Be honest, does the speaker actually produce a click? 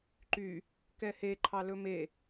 yes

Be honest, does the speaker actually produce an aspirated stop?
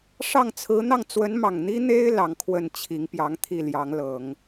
yes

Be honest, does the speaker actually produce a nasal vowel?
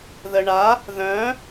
yes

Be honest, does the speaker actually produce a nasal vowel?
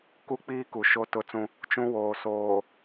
yes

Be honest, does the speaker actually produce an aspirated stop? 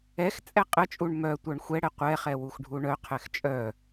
yes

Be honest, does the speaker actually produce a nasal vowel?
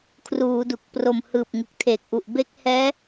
no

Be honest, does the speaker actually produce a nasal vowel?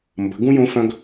yes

